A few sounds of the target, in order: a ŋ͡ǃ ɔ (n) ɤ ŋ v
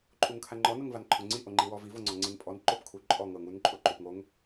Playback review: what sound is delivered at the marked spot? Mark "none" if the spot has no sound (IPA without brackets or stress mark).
n